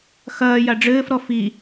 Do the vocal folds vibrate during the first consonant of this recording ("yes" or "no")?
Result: no